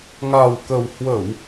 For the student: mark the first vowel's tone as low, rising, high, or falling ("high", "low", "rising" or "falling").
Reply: low